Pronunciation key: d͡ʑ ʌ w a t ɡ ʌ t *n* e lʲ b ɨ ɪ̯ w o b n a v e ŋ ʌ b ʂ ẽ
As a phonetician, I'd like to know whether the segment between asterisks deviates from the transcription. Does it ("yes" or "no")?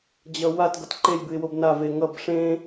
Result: yes